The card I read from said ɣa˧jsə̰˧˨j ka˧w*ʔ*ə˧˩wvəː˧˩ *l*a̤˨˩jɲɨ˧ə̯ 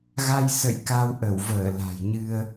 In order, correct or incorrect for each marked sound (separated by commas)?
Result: correct, correct